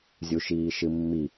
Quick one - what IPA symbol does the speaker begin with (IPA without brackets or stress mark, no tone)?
zʲ